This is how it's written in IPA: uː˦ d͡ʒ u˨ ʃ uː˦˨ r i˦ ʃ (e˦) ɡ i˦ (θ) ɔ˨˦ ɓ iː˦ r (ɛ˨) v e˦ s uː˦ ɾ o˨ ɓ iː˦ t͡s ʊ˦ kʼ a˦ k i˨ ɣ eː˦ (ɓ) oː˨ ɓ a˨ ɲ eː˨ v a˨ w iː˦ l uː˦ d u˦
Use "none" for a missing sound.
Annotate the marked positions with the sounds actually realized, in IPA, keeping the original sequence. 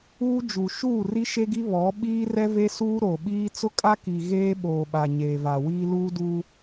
e˦, β, ɛ˦, ɓ

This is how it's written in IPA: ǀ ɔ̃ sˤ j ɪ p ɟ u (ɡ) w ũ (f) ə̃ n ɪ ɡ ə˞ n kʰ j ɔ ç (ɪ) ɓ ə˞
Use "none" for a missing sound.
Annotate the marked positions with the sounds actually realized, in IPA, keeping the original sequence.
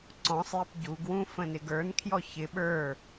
ɡ, f, ɪ

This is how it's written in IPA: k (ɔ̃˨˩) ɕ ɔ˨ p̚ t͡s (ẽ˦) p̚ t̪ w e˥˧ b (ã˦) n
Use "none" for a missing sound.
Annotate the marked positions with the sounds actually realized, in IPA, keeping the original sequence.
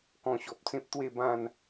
ɔ̃˧, ẽ˦, ã˥˧

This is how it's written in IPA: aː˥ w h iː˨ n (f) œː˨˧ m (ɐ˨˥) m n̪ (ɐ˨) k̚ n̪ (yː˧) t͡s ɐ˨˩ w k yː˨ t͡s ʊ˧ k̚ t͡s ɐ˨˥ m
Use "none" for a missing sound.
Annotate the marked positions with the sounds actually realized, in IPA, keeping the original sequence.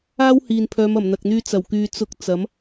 pʰ, ɐ˨˩, ɐ˨, yː˧

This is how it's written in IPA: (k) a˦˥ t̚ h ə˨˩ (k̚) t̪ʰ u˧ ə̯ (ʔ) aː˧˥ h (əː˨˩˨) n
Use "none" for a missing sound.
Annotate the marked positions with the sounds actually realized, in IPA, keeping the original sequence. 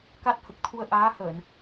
k, k̚, ʔ, əː˨˩˨

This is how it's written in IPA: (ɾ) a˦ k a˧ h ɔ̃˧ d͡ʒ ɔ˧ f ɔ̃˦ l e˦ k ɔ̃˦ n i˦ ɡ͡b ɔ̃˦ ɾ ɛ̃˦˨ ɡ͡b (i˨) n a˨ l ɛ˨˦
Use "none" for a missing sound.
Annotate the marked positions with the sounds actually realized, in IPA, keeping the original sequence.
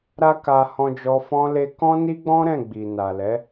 ɾ, i˨

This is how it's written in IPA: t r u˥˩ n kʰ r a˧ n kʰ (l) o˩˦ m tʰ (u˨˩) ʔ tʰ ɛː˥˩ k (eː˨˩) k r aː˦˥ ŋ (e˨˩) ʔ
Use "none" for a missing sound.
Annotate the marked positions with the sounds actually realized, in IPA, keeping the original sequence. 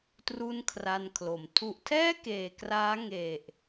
l, u˨˩, eː˨˩, e˨˩

